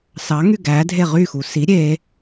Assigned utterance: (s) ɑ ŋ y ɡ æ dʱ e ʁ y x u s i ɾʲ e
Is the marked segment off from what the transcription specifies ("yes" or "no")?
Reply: no